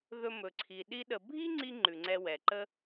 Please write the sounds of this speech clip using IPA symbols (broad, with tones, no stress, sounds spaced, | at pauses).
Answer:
ð ɵ˧ m ɵ˩ ǀʰ i˩ ɗ i˥ ɗ ə˧ bʱ i˥ ŋ͡ǀ i˥ ŋ͡ǃ ʉ˩ ŋ͡ǀ ɛ˧ w ɛ˩ ǃ ə˥